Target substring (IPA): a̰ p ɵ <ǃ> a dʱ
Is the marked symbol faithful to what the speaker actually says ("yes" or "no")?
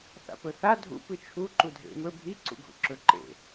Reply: no